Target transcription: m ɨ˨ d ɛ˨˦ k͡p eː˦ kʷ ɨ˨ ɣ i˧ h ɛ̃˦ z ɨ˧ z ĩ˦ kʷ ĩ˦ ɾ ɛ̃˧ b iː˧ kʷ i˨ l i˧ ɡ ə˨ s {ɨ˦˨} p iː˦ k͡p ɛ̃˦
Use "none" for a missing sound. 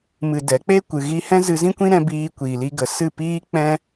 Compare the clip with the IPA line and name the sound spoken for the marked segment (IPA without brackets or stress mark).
ɨ˦˨